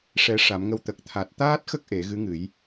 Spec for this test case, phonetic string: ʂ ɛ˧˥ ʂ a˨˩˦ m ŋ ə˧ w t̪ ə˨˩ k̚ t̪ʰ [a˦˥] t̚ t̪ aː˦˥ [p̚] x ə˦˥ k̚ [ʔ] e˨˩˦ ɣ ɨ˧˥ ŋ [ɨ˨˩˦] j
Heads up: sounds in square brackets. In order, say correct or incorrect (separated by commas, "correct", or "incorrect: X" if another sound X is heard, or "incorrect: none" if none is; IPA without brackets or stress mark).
incorrect: a˨˩, incorrect: t̚, correct, correct